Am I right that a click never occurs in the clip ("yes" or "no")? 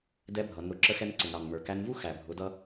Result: no